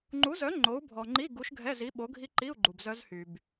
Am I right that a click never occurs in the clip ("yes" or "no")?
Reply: no